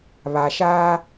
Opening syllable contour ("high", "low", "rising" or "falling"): low